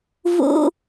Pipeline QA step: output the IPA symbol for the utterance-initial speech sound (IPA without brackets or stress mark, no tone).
v